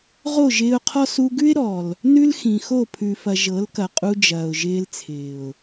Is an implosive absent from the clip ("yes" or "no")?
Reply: yes